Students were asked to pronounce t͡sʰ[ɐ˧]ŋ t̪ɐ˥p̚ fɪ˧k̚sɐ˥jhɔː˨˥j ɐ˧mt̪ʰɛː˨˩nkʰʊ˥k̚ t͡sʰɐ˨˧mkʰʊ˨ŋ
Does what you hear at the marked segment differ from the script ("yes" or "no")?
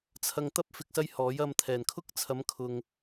no